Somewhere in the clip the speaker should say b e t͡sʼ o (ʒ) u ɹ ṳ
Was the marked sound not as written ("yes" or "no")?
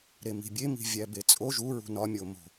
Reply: no